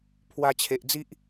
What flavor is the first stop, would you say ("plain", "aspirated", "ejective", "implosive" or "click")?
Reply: aspirated